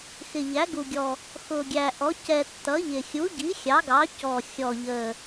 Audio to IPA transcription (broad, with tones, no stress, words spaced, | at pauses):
xɪ˨˩ ʎæ˩˥ɡu˨˩ɡʲɔ˨˩ | xʊ˨˩ ɡʲæ˨˩ʔɔ˩˥ cɛ˨˩ tːʌ˩˥ʎɪ˨˩ xʲu˩˥ɟi˩˥ xʲɑ˩˥ɡɑ˩˥cɔ˨˩ xʲɔ˨˩ʎə˨˩